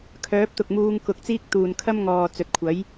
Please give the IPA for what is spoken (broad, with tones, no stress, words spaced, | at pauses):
kʰœː˨˥p̚t̪ʊ˨k̚muː˧ŋ kʊ˨˥k̚t͡siː˥k̚t̪uː˨n kʰɐ˥mŋɔː˨ t͡sɵ˨t̚ kʷʰɐ˨˥j